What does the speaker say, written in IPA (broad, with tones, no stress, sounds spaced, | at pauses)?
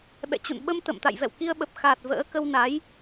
ɓ ɛ̰˧˨ t͡ɕ ṵ˧˨ n ɓ ə˧ m t̪ ə̰˧˨ m t̪ a̰˧˨ j v ɛ̰˧˨ w k i˧ ə̯ ɓ ə˨˩ p̚ x aː˨˩ t̚ v ə̰ː˧˥ k ə˧ w n a˨˦ j